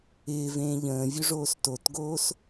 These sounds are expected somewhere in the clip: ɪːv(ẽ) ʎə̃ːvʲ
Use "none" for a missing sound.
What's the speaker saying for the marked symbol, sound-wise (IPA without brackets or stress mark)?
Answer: ẽː